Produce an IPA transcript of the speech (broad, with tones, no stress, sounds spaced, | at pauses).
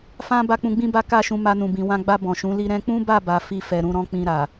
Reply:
f ã˦ b a˦ k͡p ũ˧ ɡ͡b ĩ˦ b a˦ k a˦˨ ʃ ũ˧ m a˦ n ũ˧ b ĩ˧ w ã˦ ɡ͡b a˧ b ɔ̃˨ ʃ ũ˨˦ l i˦ ɾ ɛ̃˧ k͡p ũ˦ b a˦˨ b a˨ f i˧ f ɛ˨ ɾ ũ˨˦ ɾ ɔ̃˦ k͡p ĩ˧ ɾ a˨